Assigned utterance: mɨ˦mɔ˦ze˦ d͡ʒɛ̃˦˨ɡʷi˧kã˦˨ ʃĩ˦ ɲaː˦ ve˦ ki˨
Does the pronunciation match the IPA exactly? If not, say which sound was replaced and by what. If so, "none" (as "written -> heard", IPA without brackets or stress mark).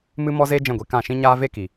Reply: none